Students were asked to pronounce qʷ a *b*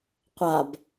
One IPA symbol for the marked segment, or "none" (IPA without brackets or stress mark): b